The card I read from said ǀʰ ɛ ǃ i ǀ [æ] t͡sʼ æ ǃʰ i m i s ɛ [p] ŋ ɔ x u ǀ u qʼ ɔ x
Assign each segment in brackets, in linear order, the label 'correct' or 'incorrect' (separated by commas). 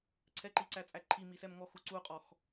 correct, incorrect